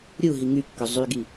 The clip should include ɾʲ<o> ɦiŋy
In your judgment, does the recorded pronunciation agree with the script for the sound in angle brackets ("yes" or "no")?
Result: no